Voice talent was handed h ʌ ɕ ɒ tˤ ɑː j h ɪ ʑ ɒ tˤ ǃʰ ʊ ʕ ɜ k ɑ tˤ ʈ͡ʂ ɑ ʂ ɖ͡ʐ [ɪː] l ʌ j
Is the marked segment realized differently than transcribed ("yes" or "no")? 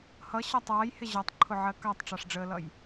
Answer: yes